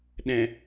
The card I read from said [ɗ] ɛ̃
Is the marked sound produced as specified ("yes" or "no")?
yes